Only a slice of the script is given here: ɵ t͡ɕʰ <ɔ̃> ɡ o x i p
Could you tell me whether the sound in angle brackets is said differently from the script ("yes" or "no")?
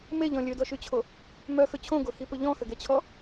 yes